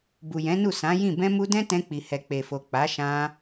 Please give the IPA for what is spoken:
b u˨ j ɛ̃˨˦ n u˦˨ s ã˨˦ j ĩ˦˨ b ɛ̃˧ m u˧ d ɛ̃˦ t ɛ̃˧ k͡p i˨ h ɛ˨ k͡p e˨ f o˨ k͡p a˨˦ ʃ ã˧

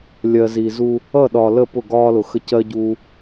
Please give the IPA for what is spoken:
lʲ ɜ˨ z i˨ z u˦ | ʌ˦˨ ɗ ɒː˨ l ə˦˨ p ʊ˦˨ ɡ ɒː˦ l ʊ˨ x ə˦ c ɜ˦ ɟ uː˦

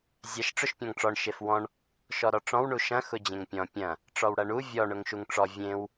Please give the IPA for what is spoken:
zʲ ɐ ʃ ʈ͡ʂ ʊ ʃ pʲ ɔ̃ ŋ ʈ͡ʂ ɔ ɳ ʃ e f w ɔ̃ ɳ | ʃ ɔ ɾ ɔ ʈ͡ʂ ɔ̃ w ɳ u ʃ ɐ̃ x ʊ d͡ʑ ẽ ŋ pʲ ɔ̃ pʲ ɐ̃ | ʈ͡ʂ ɔ w ɽ ɐ ɳ u vʲ ɔ ɳ ʊ ŋ ʃ u ŋ ʈ͡ʂ ɔ vʲ ẽ w

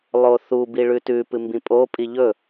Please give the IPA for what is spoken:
lˠ o θ u b i ɭ ʉ t ʉ p ɨ m b ĩ pʼ o pʼ i ʎ ɵ

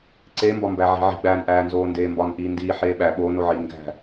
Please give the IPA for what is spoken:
ǀ e m b ɒ m b æ ʕ i̤ ʕ i̤ ɡ͡b æː n ʔ æː n z oː n d eː m b ɒ n ʔ iː n d iː ħ eː ɓ æ ɓ oː n o ʕ iː n ɡ æ̤

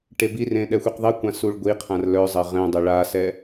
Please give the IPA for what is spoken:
ʈ e b i r ẽ ɗ ɛ xʷ i q ðˤ i kʷ ã s u ɭ ɡʷ i qʰ ã r l œ zˤ ɐ ʁ ɛ̃ dˤ e ɭ a s ɛ

